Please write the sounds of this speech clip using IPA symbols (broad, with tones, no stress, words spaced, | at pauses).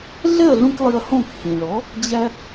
ɮɛ˥˩ɐ̯ɮũ˧k lˠi˧ɐ̯hõ˥˩k hĩ˩ɭɔ˩˥ | d͡ʑæ˧